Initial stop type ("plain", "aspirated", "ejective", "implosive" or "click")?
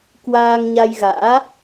plain